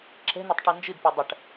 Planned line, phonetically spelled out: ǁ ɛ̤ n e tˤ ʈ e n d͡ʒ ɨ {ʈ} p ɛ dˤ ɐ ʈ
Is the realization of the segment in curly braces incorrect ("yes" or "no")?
yes